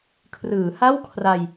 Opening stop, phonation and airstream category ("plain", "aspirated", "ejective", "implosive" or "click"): aspirated